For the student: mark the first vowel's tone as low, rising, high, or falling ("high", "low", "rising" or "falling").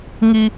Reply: high